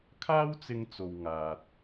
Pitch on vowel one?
high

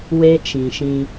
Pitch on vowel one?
high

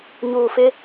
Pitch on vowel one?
low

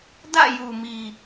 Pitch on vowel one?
falling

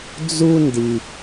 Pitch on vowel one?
high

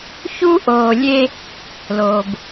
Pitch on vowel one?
high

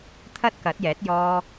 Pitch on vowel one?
high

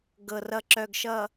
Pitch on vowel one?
low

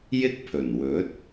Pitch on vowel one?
high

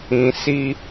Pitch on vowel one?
low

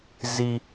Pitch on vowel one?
low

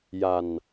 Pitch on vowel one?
low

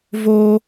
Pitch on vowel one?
high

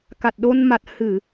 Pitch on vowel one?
low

